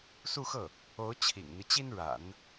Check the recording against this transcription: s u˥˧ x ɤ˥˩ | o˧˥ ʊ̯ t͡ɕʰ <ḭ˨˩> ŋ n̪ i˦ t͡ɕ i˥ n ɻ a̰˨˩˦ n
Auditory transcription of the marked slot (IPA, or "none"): ḭ˨˩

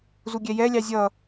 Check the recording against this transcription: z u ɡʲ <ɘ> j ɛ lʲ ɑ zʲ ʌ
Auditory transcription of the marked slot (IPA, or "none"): ɛ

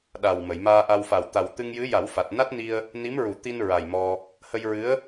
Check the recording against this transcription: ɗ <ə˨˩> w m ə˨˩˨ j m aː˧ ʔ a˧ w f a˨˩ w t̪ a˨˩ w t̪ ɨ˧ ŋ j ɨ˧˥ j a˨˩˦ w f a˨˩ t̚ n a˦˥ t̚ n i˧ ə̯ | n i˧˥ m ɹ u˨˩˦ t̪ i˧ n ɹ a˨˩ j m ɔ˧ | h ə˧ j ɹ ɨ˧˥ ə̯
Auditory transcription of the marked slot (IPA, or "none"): a˨˩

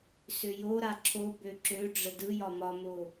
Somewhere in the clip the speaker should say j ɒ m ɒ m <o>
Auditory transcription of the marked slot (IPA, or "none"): o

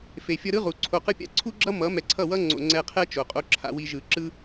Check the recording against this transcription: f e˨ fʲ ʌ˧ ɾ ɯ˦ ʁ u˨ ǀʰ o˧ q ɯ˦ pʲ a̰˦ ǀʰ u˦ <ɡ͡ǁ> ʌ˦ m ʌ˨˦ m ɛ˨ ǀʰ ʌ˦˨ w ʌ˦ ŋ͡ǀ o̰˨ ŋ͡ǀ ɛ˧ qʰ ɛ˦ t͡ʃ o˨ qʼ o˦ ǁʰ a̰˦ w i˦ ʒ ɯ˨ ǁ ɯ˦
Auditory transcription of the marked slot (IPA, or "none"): ɡ͡ǁ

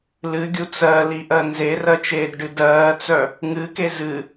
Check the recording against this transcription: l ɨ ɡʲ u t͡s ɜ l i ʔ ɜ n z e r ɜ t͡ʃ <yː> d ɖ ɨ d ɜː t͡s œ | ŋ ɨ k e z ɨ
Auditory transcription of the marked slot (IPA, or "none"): eː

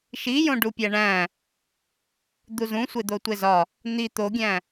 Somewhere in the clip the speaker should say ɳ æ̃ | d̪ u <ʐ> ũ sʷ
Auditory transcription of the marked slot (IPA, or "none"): z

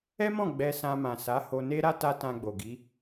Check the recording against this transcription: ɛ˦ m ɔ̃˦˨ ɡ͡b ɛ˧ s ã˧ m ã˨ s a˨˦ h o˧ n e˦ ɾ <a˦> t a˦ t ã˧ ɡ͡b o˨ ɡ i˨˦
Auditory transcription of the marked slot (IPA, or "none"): a˦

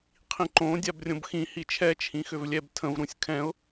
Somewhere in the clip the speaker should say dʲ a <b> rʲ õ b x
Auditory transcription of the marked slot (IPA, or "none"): b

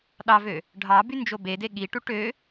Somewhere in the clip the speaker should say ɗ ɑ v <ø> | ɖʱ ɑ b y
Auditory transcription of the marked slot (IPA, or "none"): ø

